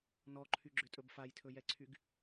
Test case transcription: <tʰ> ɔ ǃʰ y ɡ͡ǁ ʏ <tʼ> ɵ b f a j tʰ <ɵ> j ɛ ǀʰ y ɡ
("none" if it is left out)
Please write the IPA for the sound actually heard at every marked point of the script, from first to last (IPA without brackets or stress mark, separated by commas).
n, tʼ, ɵ